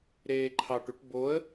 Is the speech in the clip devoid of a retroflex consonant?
no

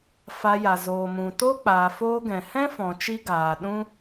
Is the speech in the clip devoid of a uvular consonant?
yes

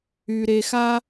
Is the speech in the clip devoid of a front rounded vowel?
no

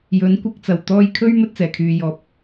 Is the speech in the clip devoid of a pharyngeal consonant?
yes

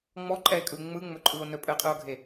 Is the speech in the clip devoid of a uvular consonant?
no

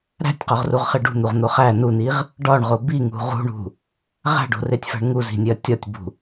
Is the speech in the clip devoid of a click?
yes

